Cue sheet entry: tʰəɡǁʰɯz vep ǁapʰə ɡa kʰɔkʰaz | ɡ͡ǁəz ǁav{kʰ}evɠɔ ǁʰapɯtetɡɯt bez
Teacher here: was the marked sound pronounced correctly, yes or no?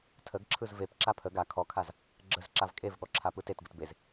no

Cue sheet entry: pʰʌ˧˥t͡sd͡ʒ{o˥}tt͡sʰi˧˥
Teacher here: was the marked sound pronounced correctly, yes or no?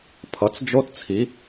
yes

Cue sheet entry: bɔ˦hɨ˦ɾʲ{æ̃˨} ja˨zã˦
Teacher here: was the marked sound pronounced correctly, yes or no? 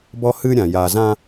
no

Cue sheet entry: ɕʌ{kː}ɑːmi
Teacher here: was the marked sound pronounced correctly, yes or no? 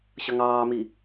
no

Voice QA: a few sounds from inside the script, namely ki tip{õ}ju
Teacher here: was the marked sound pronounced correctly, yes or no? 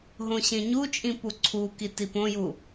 yes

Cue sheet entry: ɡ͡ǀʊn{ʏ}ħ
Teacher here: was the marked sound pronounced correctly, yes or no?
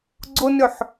yes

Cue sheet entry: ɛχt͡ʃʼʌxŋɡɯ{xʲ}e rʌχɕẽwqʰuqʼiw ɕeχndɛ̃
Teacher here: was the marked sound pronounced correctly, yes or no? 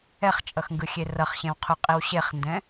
yes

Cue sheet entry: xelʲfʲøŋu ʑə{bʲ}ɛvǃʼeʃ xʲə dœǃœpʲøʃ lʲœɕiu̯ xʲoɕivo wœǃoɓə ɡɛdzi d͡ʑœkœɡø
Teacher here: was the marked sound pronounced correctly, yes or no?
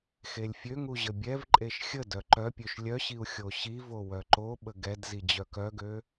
yes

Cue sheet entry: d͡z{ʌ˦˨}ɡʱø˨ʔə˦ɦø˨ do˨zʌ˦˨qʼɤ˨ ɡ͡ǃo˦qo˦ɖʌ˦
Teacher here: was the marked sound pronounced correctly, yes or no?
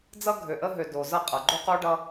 no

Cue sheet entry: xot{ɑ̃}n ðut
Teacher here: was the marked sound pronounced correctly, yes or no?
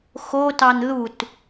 no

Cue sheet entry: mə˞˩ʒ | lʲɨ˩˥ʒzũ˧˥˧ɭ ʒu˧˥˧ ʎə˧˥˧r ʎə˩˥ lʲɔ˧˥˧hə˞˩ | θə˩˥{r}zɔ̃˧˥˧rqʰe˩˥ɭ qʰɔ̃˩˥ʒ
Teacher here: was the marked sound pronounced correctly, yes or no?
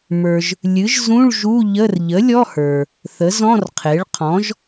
no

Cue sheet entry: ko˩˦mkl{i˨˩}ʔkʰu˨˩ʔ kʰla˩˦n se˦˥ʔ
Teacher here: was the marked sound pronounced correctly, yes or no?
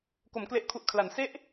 no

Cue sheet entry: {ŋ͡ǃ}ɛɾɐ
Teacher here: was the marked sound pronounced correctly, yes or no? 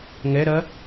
no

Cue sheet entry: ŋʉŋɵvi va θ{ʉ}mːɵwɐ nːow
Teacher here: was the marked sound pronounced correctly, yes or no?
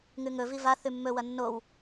yes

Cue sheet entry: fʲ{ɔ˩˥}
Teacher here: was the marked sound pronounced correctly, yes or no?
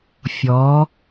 yes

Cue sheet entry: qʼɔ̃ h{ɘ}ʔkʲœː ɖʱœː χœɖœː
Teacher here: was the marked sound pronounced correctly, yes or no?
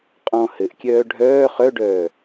yes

